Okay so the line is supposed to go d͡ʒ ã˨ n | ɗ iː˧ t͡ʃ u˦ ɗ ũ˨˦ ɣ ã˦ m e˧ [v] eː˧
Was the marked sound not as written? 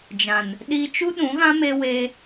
yes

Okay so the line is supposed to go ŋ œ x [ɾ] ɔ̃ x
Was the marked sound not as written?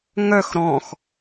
no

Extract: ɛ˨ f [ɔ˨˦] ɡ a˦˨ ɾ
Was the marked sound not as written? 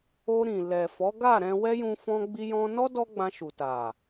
no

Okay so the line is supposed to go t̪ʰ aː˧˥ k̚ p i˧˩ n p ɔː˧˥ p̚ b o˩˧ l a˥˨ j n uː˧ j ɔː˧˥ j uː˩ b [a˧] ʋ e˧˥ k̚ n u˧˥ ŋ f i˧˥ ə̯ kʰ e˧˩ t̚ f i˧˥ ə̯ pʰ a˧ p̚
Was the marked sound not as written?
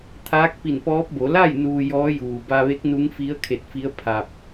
no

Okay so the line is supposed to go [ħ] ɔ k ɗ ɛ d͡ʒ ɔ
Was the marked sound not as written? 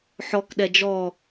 no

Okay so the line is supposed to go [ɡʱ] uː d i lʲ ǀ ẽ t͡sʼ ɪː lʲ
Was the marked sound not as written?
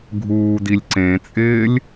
no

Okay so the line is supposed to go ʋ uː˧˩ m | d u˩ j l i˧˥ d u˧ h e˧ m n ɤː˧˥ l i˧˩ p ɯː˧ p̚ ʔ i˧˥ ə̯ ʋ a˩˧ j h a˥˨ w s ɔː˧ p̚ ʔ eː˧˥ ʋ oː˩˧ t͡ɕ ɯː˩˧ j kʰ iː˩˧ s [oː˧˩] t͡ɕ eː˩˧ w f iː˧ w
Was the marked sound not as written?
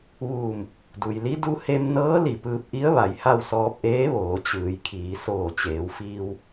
no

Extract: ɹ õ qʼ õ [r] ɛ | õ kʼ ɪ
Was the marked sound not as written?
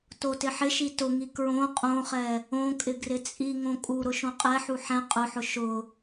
yes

